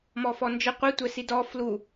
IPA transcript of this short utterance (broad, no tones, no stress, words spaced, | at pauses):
mɔfɔnd͡ʒə qʷitʷɛ sidɔ flu